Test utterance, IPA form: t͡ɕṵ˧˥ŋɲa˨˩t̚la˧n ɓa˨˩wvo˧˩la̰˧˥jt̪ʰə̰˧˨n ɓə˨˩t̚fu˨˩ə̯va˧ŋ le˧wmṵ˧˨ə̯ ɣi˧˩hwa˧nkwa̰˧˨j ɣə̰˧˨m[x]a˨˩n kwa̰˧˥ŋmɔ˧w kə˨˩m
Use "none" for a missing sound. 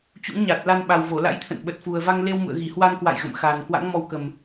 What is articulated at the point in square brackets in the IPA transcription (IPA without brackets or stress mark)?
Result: x